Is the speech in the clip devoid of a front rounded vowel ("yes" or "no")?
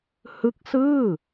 yes